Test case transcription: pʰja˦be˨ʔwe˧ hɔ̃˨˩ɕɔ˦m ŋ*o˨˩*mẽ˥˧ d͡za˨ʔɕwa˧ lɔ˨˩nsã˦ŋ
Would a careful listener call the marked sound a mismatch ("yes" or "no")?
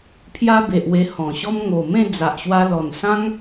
no